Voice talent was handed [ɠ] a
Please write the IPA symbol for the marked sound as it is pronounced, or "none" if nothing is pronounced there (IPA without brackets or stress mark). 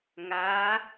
ŋ